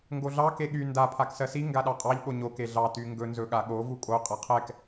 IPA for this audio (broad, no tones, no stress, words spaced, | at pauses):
ŋɡoɮɑ keɠy nda pʰaksɜsi ŋɡaɗɑqʼɑʎ ɠoɲo keɮɑ tyŋɡɵ nzɵɠaɠo vukʼo qʼaqʰɛk